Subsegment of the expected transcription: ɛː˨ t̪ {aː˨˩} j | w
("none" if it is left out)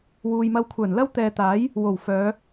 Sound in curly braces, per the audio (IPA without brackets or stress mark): aː˨˥